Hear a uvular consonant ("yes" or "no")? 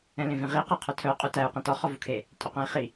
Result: yes